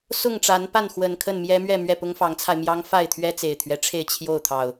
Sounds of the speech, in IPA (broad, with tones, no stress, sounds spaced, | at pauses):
s ʊ˥˨ ŋ ʈ͡ʂ a˨˦ n p a˥˨ n x w ə˨˩ n kʰ ə˥˨ n m j ɛ˦ m ɥ ɛ˥˨ m ɥ ɛ˥˨ p ʊ˦ ŋ f ɑ˨˦ ŋ t͡sʰ a˧ ɪ̯ m j ɑ˦ ŋ f a˥˨ ɪ̯ t̪ʰ ɥ ɛ˦ t͡s e˨˩ ɪ̯ t̪ʰ ɥ ɛ˦ ʈ͡ʂʰ e˥˨ ɪ̯ t͡ɕʰ j o˥˨ ʊ̯ t̪ʰ ɑ˨˩ ʊ̯